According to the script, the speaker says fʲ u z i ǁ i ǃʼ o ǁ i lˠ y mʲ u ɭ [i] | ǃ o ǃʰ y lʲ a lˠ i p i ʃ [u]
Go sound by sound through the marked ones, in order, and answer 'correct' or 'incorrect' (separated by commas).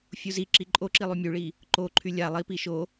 correct, incorrect